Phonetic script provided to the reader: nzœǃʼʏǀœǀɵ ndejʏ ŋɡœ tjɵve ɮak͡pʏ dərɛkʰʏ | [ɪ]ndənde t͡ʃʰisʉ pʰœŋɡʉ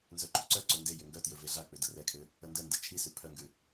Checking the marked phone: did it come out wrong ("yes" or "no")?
yes